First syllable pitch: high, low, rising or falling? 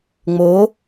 rising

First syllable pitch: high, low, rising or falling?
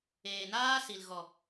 low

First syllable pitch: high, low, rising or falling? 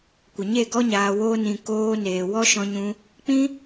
low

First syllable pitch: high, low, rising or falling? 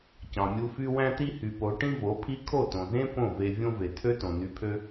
low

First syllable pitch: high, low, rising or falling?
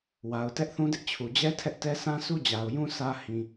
low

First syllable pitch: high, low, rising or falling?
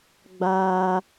high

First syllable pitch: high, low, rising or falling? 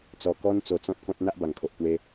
low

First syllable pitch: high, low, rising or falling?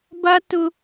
high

